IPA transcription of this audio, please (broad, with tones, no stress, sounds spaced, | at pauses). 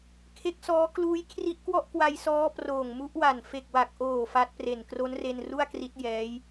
kʰ e˦˥ k̚ s ɔː˦˥ k l uː˦˥ j kʰ r i˦˥ ʔ k w ɔ˥˩ ʔ k w a˧ j s ɔː˦˥ p r oː˨˩ ŋ m u˦˥ ʔ w a˨˩ n f e˨˩ k̚ w a˨˩ k̚ ʔ oː˨˩ f a˦˥ t̚ p r e˨˩ n k r o˦˥ n r e˧ n r u˥˩ a̯ k r i˦˥ t̚ j ɛː˦˥ j